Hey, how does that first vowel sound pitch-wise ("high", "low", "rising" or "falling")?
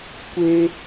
high